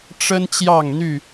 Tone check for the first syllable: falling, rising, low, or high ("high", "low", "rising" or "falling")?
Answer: high